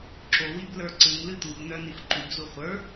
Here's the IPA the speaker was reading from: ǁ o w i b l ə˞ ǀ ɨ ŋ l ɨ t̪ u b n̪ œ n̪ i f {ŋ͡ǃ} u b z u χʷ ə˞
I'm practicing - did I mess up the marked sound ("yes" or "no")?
yes